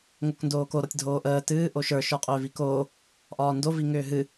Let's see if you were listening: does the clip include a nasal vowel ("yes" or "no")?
no